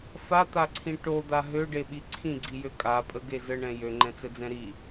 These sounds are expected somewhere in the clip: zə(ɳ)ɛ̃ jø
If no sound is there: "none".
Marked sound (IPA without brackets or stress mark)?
ɳ